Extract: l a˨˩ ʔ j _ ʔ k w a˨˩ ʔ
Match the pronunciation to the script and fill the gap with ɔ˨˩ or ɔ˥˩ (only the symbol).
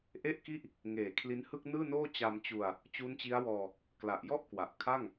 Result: ɔ˥˩